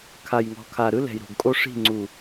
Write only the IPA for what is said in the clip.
kʰa˨jŋɔ̤˨kʰa˨ɾɯ˦ lɛ̤˨jɾo̤˨ɡkʼo˦ ʂi̤˦˨ŋ͡ǀu˨

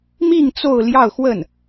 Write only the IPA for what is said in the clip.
mi˥˧ŋ t͡so˥˧ʊ̯ljɑ˥˧ʊ̯xwə˥˩n

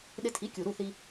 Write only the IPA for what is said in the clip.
ɗɪ˧tʰi˩˥kʲu˩ɾu˥˩ θi˧

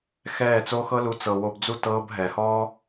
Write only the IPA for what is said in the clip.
xɛː˦˨t͡soː˦ xɤ˦lu˧ t͡sɤ˨wo˧bd͡zu˦ tɤː˧b ɦɛ˨hɔː˦

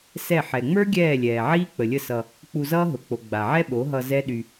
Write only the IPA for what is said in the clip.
sɛ˦˨ ħɛ˨ŋ͡mə˞˦ ɡʲɛː˦˨lʲɛː˨ʕiː˦ k͡pə˨lʲə˦˨sʌ˧ | k͡pu˧zʌː˦ɦʊ˨k͡po˨ ɡ͡ba˨ʕɛ˦ɓo˨˦ɦʌ˧ zɛ˦ ɗy˧

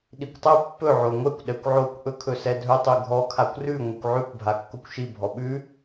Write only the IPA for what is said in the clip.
ɗikʷtˤɵ pːɵ ʕoŋʷɛkʷ ɗɛkʷʕokʷ ʔɵkʰɵsɛdʱɵ tˤʉɡʱɔ kʰakʷrʉ ŋʷikʷʕʉkʷ bʱakːokʷʃi bʱɔɓʉ

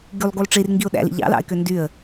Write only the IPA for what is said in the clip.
ɡylˠɡulˠ ʈ͡ʂirŋɡiʊ̯ ɗæ̰lḭ ʎɑ̰lɑ̰ɪ̯kø ndyə̯

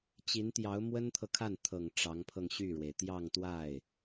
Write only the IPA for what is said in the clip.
t͡ɕi˧˥nt̪jɑ˧˥ʊ̯ mwə˥nt̪ʰɤ˨kʰa˥˩n t̪ʰɤ˨˩ŋ ʈ͡ʂɑ˧˥ŋpʰɤ˧ŋɕy˥˩ɻwe˩ɪ̯ t̪jɑ˥˧ŋt̪wa˥˩ɪ̯

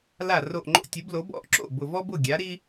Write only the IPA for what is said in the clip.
la˥˩ro˥˩ʔŋ͡ǃo̰˥ tʲu˩˥blo˩˥bɔ̰˥˩ʔ ǁo̰˥˩bʊ˨˩vɔ˥bʊ˥˩ ɡʲa˩˥ɾi˥

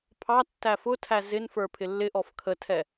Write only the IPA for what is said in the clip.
pʰɑtːæ fʊtʰæ zɪnfə˞ pʰɪlːɪʔɔf kʰətʰɛ

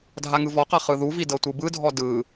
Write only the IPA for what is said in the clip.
dʱaŋɯvɔqa χɯðuvi dɤtʷɯbɯdʱɔ dɯ

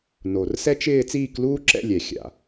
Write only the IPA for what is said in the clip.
no˨˩rsɛ˥t͡ʃɪː˥˧ t͡siː˥˧kluː˥ǁɛ̰˥˧lʲɛ˨˩ xʲa̰˨˩

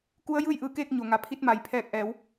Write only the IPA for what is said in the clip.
ku˧˥ə̯ jɯː˥˨jʔɯː˧˩keː˥˨k̚ ɲo˩ŋa˩ pʰi˧t̚ma˩j pʰɛː˧˩k̚ʔɛː˩˧w

